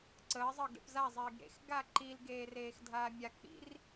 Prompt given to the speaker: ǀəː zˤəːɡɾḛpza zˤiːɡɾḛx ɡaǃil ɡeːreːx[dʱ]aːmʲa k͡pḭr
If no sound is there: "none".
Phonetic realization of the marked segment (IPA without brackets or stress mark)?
dʱ